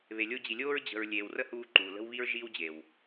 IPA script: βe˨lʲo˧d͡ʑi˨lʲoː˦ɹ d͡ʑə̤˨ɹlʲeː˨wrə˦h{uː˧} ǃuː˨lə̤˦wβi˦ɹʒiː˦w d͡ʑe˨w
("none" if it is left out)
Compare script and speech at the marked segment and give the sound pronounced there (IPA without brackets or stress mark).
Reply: uː˧